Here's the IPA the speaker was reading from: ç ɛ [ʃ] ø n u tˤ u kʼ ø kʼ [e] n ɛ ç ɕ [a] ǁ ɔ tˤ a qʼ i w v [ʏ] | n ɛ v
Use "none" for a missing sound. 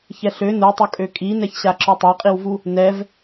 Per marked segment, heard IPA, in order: ɬ, i, a, u

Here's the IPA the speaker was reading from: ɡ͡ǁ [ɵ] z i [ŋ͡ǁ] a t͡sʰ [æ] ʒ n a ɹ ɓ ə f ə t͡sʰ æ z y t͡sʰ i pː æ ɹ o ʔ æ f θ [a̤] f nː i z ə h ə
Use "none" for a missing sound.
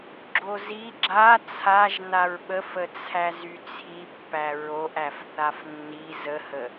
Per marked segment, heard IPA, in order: o, ɡ͡ǁ, a, a

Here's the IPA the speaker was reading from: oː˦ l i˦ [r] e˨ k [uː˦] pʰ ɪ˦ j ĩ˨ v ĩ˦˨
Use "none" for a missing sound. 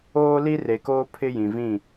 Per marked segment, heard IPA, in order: r, oː˦

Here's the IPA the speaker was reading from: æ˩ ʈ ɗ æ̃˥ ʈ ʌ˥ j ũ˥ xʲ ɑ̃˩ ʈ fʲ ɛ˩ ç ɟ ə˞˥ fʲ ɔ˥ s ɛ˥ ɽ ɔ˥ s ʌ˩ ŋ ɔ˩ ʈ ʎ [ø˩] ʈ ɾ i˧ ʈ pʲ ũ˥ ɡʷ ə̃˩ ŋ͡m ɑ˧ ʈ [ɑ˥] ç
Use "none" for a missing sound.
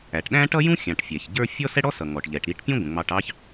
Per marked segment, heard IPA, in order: ɛ˩, ɑ˥

